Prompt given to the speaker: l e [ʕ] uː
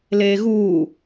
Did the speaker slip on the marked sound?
yes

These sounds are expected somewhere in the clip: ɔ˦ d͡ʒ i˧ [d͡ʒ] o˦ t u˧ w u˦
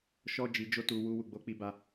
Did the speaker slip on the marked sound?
no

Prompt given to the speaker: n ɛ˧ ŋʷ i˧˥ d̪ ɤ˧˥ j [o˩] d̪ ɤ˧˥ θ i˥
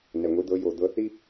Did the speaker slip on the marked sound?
yes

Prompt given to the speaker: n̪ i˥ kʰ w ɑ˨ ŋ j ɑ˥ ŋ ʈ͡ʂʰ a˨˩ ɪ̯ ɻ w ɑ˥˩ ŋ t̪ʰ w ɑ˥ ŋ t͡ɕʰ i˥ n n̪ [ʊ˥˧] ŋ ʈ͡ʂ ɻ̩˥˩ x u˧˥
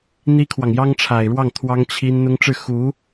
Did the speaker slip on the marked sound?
yes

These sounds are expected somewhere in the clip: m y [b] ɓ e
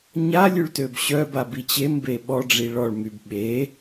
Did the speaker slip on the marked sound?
no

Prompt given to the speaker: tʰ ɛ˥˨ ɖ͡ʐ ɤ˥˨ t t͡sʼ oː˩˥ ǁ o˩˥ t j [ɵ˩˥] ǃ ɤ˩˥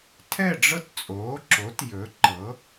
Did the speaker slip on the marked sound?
no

